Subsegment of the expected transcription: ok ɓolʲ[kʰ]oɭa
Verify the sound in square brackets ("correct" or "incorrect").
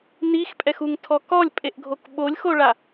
incorrect